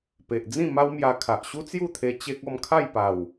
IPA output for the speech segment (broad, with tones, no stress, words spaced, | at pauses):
pe˨ʔd͡zĩ˥˧ ma˦wmja˧kʰa˨ʔ ɕu˦t͡sju˥˧t̪ʰe˧ t͡ɕe˦k̚ ɔ˥˧mkʰa˥˧jpa˨˩w